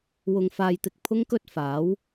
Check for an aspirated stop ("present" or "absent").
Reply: present